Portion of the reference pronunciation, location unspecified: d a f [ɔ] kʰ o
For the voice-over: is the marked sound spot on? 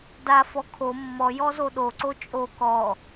yes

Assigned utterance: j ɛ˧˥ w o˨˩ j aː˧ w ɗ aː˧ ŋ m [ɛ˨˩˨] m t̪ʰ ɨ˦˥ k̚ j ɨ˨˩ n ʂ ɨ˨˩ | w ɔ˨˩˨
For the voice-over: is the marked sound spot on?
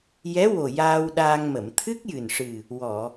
no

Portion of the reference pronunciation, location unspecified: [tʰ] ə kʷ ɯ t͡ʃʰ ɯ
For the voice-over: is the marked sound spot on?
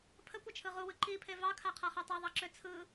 no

